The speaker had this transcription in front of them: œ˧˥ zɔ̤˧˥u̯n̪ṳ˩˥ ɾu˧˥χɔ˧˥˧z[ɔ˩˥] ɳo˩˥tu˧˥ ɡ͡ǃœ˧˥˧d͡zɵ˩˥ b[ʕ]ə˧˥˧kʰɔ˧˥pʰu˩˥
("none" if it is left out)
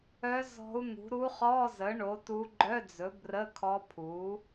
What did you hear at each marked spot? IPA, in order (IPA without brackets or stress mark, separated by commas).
ə˩˥, r